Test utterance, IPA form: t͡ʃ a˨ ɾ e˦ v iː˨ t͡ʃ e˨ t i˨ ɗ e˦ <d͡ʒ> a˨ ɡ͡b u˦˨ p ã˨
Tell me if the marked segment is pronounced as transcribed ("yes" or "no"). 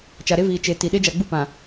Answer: yes